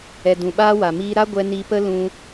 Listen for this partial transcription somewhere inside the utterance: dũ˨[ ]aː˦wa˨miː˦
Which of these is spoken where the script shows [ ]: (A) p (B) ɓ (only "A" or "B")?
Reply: B